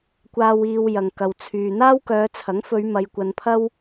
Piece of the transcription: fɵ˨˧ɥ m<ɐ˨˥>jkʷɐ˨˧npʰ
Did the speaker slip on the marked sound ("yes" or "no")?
yes